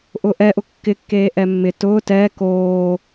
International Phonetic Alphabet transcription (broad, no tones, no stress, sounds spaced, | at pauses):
ʔ ʊː ʔ ɛ ʔ ʊ kː ɪ kː eː ʔ ɛ mː ɪ t ʊː t ɛː k oː